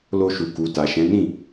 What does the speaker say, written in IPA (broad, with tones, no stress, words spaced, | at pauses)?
lo˧ʃu˨ku˨ ta˨ʃɛ̃˨˦ nĩ˦˨